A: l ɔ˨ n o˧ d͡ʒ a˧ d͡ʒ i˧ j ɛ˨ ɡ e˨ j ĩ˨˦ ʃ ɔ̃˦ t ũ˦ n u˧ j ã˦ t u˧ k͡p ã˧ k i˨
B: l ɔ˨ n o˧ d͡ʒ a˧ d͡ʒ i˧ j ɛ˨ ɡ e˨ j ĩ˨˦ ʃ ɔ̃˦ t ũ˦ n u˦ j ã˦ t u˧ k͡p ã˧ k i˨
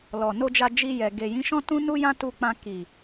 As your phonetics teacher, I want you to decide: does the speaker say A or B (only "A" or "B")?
B